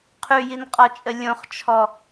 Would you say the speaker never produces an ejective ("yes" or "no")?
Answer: no